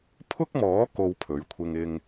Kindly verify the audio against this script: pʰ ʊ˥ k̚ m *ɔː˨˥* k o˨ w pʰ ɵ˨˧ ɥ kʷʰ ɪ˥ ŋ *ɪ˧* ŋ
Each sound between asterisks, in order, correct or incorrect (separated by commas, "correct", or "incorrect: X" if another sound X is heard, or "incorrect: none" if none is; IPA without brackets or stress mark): correct, incorrect: ɪ˥